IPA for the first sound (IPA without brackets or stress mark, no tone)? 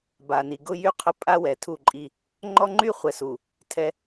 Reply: b